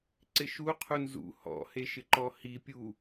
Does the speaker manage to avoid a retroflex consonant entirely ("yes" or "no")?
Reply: yes